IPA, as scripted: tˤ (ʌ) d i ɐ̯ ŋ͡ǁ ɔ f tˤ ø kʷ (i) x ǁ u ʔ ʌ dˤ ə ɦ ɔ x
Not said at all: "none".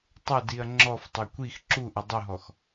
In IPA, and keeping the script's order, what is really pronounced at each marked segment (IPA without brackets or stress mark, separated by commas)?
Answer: ʌ, i